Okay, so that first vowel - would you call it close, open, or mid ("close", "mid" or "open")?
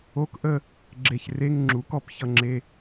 mid